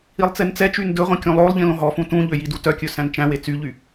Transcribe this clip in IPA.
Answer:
i lˠ t͡s e n t͡s ɛ t͡ʃ y n d ɵ ʁʷ ĩ kʲ ũ lˠ o lˠ ʎ ĩ l õ ɦ ɔ f ũ t ũ ʎ ø j i d u t œ kʲ ɵ s æ̃ n t͡ʃ æ̃ w e t͡s y ʎ y

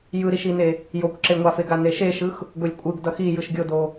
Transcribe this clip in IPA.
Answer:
j ɯ ɾ i ʃ i n e | j o kʷ ǁ e ŋʷ a f e ɡ a n e ʃ e ʃ ɯ x | ɡ o lʲ kʷʼ ɯ ɡ d ʌ x i j ɯ ʃ ɡʲ o d o

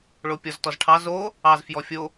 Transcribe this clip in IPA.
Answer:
ɭ o pʲ ɔ z t ɔ z ʈʰ ɑ z o | ɑ z f j ɔ fʲ o

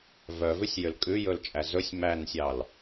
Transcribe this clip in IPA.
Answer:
v œ v ʉ sʲ j ø l kʼ ʉ j ɵ l t͡ʃʼ æ z ɵ sʲ m æ n sʲ ɑ l

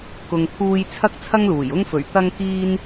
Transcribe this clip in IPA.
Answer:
k ʊ˧ ŋ t̪ʰ uː˥ j t͡sʰ ɐ˥ k̚ t͡sʰ ɐ˥ ŋ l uː˨˩ j ʊ˥ ŋ f ɵ˨˩ ɥ t̪ ɐ˥ ŋ k iː˥ n

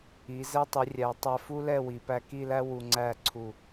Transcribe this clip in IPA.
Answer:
i˩˧ z ɛ˧ tˤ i˩˧ rʲ æ˩˧ tˤ æ˧ f u˥ l ɛ˥˧ w i˩˧ p æ˧ k i˥˧ l æ˥ w u˧ ŋ͡ǀ æ˥˧ ǀʰ u˧˩

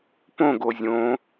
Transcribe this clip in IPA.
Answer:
p õ ɡ o zʲ õ

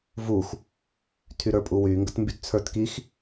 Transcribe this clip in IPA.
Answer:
v u x | tʰ y ɾ ə˞ pʼ u w y ŋ ɡ ə t m b y t t͡sʰ ə˞ t k i x

